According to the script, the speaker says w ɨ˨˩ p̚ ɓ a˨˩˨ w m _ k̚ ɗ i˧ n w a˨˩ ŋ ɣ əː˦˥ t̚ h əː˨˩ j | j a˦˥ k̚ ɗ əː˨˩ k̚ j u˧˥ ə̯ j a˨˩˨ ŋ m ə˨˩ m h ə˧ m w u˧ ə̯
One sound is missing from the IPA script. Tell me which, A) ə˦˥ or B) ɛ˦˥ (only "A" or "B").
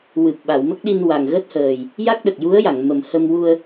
A